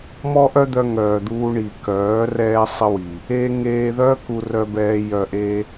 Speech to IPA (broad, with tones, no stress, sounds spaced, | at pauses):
m ɔ˦ ʔ œ˦ d̪ œ˧ ŋ œː˨ d̪ uː˧ ɳ i˨ k œː˨˦ r ɛː˦ sˤ ə˦ w i˨ | eː˦ ŋ eː˧ ð œ˦ k u˧ r œ˧ b ɛː˧ j œ˧ ʔ e˦